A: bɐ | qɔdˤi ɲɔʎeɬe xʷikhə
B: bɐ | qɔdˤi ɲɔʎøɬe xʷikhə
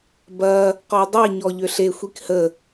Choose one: B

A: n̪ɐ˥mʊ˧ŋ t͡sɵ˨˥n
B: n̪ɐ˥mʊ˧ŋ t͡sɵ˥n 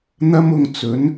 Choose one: A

